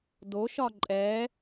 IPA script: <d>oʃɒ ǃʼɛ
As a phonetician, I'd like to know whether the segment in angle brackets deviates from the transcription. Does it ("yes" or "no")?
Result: no